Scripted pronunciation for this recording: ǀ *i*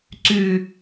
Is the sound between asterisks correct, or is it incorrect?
incorrect